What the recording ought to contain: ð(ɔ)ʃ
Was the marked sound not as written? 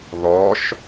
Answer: no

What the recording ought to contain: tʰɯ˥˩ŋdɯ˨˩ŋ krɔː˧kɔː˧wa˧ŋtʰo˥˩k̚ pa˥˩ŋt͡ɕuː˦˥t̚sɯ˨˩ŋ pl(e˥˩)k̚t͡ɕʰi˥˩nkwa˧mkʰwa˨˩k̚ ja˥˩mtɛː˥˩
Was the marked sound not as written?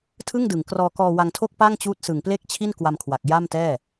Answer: no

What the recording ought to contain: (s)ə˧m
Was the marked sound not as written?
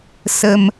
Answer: no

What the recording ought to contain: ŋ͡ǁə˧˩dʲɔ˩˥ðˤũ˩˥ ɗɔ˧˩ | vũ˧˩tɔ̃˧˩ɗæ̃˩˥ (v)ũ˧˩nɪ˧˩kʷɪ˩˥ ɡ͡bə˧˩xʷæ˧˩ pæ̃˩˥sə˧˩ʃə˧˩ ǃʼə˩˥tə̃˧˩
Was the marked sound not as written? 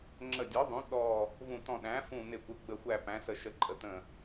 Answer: yes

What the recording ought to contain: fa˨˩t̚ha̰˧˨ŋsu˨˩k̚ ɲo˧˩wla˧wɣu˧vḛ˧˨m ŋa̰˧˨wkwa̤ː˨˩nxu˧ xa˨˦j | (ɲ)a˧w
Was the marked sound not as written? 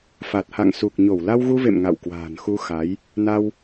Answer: yes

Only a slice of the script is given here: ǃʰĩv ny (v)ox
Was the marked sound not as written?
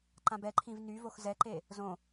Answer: no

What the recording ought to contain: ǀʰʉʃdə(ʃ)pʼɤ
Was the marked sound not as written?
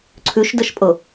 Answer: no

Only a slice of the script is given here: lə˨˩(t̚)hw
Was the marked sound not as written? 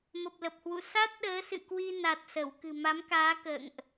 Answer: yes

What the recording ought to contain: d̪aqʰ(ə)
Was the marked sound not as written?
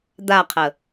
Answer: no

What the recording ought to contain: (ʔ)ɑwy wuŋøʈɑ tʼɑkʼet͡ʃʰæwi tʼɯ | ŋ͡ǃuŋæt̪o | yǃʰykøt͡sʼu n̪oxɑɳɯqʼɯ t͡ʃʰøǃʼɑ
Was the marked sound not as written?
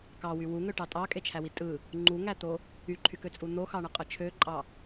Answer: yes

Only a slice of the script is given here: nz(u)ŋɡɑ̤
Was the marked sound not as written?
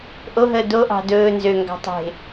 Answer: yes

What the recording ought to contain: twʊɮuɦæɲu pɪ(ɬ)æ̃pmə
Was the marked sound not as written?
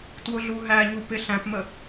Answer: no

